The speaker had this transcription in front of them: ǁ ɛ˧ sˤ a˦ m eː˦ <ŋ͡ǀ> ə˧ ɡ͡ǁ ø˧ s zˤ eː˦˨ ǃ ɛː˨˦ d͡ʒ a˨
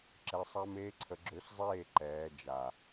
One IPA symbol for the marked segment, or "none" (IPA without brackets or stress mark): ǀʰ